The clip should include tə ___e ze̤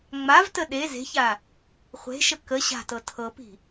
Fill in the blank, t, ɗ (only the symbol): ɗ